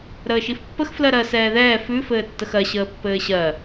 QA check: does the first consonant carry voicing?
yes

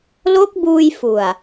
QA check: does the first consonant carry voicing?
yes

